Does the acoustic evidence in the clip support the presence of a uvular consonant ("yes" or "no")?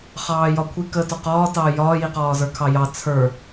yes